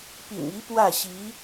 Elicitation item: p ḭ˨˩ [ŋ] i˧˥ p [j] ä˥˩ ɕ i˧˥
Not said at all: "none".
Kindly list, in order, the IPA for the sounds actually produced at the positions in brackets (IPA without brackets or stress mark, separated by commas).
ŋ, w